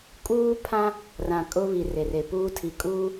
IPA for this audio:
kʼ uː˦ pʰ ã˦ | r ã˨ kʼ ʊ˦ β i˨ r e˨ r e˨ p uː˦ tʰ i˨ kʼ uː˦

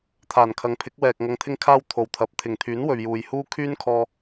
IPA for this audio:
t̪ʰ aː˨˩ n kʰ ɐ˨ ŋ pʰ ɪ˨˥ k̚ w ɛː˨ k̚ ŋ ɐ˧ ŋ t̪ʰ ɪ˥ ŋ kʰ aː˥ w t̪ʰ o˨ w t̪ʰ ɐ˨˥ p̚ t̪ʰ ɪ˨˩ ŋ t̪ʰ yː˨˥ n w ɵ˨ ɥ j uː˨ j h uː˥ kʰ yː˥ n kʰ ɔː˧

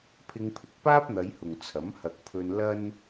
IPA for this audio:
pʰ ɪ˧ ŋ pʰ ɪ˨˥ k̚ p aː˥ p̚ n̪ ɐ˨˧ j h ʊ˨ ŋ t͡sʰ ɐ˨˥ m h ɐ˨ k̚ pʰ ɵ˧ n l ɐ˥ n

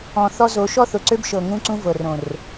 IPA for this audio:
ɔ̃˨ θ ɔ˦ z o˨˦ ʃ ɔ˦ θ ʊ˨ ǀ ø˦ b ʃ ɤ˨ ŋ ũ˦ ǀ ũ˦ v ɤ˨ r õ˨ r

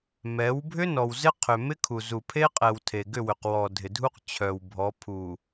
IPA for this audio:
m ɛ˨˦ w bʱ ʏ˦ n ɔ˨ w z ɪ˦ qʰ ʏ˨ m ɪ˦ kʰ u˨ z u˨ pʰ e˦ qʼ ɛ˨ w tʰ e˨ ɡ ʏ˦˨ w ʏ˨ q w ɔ˨ dʱ ɪ˨ dʱ u˦ q t͡ɕʰ œ˨ w bʱ ɔ˨˦ pʰ u˨

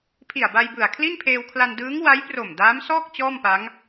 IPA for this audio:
pʰ i˨˩ a̯ b a˧ j b ɯ˨˩ a̯ kʰ l i˥˩ n pʰ eː˧ w kʰ l a˧ n d ɯː˦˥ ŋ w a˦˥ j p r o˨˩ m d aː˦˥ m s ɔː˥˩ k̚ t͡ɕ ɔː˥˩ m p a˦˥ ŋ

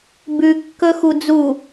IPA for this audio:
b ʉ kː ɵ x u d͡z u

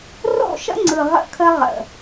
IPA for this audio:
r o̰˦˨ ʃ ə̰˦ ŋ͡ǀ ɯ˨ ʁ ə̰˦ kʰ ə˦ ʁ ə̰˨

